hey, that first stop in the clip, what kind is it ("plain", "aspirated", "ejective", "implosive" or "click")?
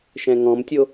plain